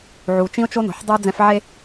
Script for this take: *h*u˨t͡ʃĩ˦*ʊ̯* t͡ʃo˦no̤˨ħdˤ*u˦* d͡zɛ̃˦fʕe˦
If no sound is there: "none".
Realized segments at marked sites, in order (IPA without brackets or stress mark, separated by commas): ʕ, ʊ̯, u˦